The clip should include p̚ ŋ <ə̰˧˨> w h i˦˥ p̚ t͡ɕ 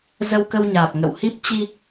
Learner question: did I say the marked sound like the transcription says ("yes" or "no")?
yes